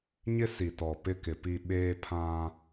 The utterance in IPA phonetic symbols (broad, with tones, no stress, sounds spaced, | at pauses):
ɲ ɪ˦ s i˨ t ɔ˨ p ɪ˦ k ɪ˨ p i˦ ɓ eː˦ pʰ ã˦